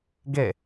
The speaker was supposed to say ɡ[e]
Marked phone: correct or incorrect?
correct